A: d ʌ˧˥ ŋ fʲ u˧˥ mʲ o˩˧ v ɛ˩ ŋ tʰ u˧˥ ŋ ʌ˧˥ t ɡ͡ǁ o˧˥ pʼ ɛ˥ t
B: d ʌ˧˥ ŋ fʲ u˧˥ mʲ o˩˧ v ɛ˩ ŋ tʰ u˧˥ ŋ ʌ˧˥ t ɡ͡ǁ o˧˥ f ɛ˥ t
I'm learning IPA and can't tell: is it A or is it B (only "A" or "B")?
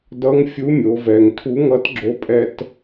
A